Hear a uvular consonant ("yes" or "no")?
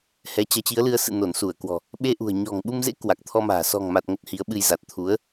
no